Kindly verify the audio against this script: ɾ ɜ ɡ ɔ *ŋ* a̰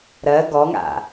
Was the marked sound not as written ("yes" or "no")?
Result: no